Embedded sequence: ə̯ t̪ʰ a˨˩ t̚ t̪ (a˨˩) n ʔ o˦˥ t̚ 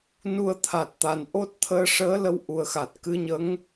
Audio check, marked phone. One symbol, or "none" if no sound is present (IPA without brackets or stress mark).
a˨˩